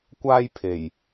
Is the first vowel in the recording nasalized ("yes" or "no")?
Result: no